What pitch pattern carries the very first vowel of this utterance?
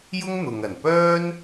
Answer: high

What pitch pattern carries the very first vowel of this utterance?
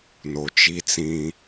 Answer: low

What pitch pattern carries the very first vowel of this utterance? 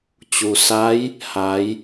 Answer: low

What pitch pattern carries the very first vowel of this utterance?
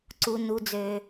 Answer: low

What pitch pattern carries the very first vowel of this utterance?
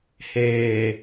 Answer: low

